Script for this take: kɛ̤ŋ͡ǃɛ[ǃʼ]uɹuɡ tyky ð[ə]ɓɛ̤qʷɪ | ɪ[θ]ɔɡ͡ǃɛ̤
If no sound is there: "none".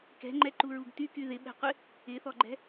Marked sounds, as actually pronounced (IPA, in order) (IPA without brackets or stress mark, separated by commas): ǃ, ɪ, θ